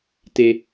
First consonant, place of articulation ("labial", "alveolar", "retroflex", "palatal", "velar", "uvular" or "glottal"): alveolar